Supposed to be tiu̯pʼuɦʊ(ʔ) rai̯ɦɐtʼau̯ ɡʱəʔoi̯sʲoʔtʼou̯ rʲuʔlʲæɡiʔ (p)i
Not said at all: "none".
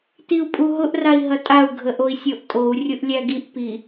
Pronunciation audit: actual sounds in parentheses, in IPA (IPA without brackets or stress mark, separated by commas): ʔ, p